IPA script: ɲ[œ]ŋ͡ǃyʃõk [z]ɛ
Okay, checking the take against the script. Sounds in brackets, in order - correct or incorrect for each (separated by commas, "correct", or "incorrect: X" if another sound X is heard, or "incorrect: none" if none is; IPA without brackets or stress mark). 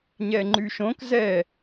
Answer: incorrect: ɛ, correct